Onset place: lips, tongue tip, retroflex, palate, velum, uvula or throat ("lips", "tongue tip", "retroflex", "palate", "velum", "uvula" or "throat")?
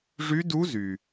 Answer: retroflex